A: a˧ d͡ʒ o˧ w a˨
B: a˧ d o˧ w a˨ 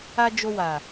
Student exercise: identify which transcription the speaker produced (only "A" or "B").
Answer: A